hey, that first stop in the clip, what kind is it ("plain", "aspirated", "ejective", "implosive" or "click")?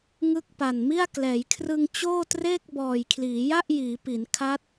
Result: plain